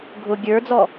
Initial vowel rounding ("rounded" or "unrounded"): rounded